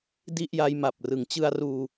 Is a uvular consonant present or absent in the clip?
absent